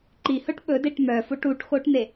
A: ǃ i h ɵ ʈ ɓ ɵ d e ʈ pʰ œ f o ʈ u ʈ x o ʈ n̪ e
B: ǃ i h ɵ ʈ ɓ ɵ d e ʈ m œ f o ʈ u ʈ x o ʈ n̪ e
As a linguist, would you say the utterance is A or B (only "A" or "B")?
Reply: B